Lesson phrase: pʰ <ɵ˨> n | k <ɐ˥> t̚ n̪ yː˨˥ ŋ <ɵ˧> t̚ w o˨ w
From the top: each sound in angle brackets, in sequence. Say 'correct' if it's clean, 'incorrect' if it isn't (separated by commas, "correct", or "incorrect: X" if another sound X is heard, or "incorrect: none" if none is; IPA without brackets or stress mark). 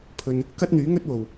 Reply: incorrect: ɵ˧, correct, incorrect: ɵ˥